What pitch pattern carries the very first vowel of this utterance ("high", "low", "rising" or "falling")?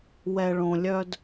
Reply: low